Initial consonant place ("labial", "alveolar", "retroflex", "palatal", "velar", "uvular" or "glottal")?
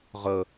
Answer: uvular